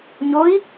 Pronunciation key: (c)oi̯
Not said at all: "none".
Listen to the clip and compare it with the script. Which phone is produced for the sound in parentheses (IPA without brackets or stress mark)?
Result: ɲ